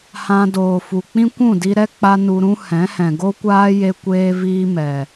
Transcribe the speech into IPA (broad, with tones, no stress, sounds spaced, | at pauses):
h ã˧ d oː˨ f u˨ k͡p ĩ˦ kʷ ũ˦˨ d i˧ ɾ ɛ˦ k͡p a˦ n u˧ ɾ ũ˦ h ɛ̃˨˦ h ɛ̃˨ ɡ o˦ kʷ aː˦ j e˧ kʷ eː˧ v iː˦ m ɛ˨